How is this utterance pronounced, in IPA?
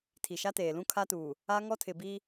tʰ i˨ ʃ a˦ t eː˨ l ũ˦ kʰ a˦ t uː˨ | a˦ ŋ ɔ˦ tʰ ɪ˨ b iː˦

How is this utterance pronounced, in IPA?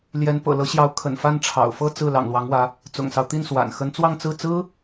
l j ɛ˧˥ n p ɤ̰˨˩ l ɤ˧˥ ɕ j ɑ˧˥ ʊ̯ kʰ ə̰˨˩ n f a˥˩ n ʈ͡ʂʰ ɑ̰˨˩ ʊ̯ f ɤ˥˧ t͡s ɹ̩˥˩ l ɑ̰˨˩ ŋ l w ɑ˧˥ ŋ w ä˧˥ | t͡s ʊ̰˨˩ ŋ s ɑ˦ ʊ̯ t̪ i˥˩ n s w a̰˨˩ n x ə˧˥ n t͡s w ɑ˥˧ ŋ t͡s ɹ̩˥˩ t͡s ɹ̩˥

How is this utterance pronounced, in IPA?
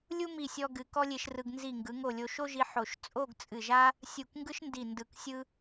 lʲ u˥ m i˧˩ sʲ ɔ˧ ɡ ɨ˩˧ k ɔ˥ lʲ e˧ ʃ r ɯ˧ ɡ n z i˧˩ ŋ ɡ ɯ˩˧ ŋ o˧˩ lʲ o˧ ʃ o˥ ʒ i˧ ħ o˧˩ ʃ t͡sʼ o˥˧ ɡ t͡sʼ ɨ˧˩ ʒ a˥ | sʲ u˧˩ k ŋ ɡ ɯ˥ ʃ n d i˧˩ n d ɯ˧˩ k sʲ ɯ˥

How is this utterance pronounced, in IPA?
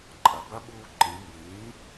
ǃʼ ɐ˩˧ b ɐ˦˥ ɓ uː˧ ǃ ĩ˩˧ m b ĩː˩˥

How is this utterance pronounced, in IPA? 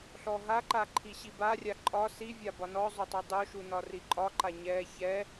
ɬ ɔ ɦ a ǃ a ǃʰ i ɕ i b a rʲ a ǃʼ ɒ s i vʲ a b ɒ n ɔ zˤ o tˤ u dˤ o ʃ u n ɒ r i ǃʼ ɒ ǃ a ɲ ɛ ç ɛ

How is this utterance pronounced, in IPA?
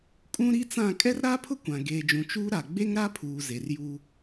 kʼ ũ˦ ɾ i˦ t͡s ã˦˨ kʼ ɛ˦ r ɾ aː˦ pʰ ʊ˦ kʷ ã˨ ɡ eː˨ d͡ʒ ũ˨ t͡ʃ uː˦ ɾ a˨ ɡ͡b e˦ ŋ ɾ a˦ pʰ uː˨ z e˨ r j uː˦

